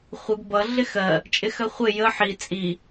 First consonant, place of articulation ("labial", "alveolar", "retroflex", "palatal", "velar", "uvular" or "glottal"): uvular